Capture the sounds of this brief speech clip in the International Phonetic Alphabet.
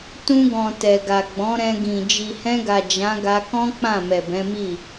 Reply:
t ũ˧ ɡ ɔ̃˨ t ɛ˨ ɡ a˨ ɡ͡b ɔ̃˨˦ ɾ ɛ̃˧ ɡ ĩ˨ d͡ʒ i˨ h ɛ̃˧ ɡ a˨ d͡ʒ ã˨˦ ɡ a˧ k ɔ̃˦ k͡p ã˦˨ m ɛ˨ b ɛ̃˨˦ m i˦˨

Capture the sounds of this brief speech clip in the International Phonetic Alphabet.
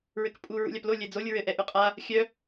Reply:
ɹ ɘ k pʼ u ɹ ṵ lʲ a p l o lʲ ɛ d͡z o lʲ ɹ ɘ ʔ ɛ ʔ ʉ qʼ a | xʲ œ

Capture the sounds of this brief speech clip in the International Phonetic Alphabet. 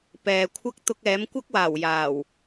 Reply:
p ɛː˨ kʷʰ ɐ˥ k̚ t̪ ʊ˧ k̚ ɛː˨˥ m kʷ ɐ˥ k̚ w aː˨˩ w j aː˨˩ w

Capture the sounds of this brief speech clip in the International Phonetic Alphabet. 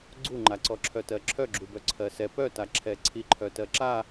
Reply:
ɡ͡ǀ u ŋ͡ǃ a ǀ ɔ ǁʰ œ t ɜ ǁʰ œ ɡ͡ǁ u b œ ǀʰ ɜ s ɛ p œ t a ǁʰ ɛ ǀʰ i ǃʰ œ t ɜ ǁ a

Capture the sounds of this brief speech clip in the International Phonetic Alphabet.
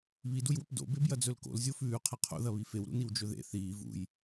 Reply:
β i d u j w ɵ p d o̰ b e b j ɐ d͡z ɵ l k o̰ l zʲ o f ʉː qʰ ɐ qʰ o̰ ð ɐ β i f e w ɾ ṵ n i w d͡ʒ ɵ ð ḛ θ iː v ṵ j

